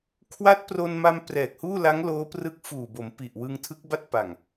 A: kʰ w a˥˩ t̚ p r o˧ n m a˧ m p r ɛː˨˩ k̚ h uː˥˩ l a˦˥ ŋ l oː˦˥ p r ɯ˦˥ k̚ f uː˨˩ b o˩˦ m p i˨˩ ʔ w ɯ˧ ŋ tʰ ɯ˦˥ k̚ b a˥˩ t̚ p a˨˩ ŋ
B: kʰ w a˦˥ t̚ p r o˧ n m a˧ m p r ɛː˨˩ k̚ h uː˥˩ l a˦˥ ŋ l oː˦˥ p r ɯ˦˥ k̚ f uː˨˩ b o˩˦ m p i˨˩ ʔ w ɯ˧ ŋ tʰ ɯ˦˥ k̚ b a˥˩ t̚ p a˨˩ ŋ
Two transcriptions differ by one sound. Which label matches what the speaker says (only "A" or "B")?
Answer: B